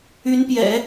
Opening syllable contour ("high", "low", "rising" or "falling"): rising